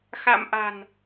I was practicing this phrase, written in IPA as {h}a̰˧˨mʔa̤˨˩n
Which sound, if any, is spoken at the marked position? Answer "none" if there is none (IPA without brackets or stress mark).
x